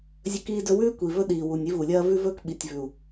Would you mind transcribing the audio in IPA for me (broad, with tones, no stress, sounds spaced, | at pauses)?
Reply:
zʲ ɵ˦ k iː˦ d ɵ˦ w ʉː˦ kʷ i˨ v ɵ˦ ɗ iː˨ w u˨ nʲ i˦ v u˨ lʲ ɐː˦ v ʉ˦ v ɵː˦ k ɓ i˨ tʲ v ʉ˨ u̯